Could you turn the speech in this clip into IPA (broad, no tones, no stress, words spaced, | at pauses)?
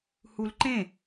hulǃẽ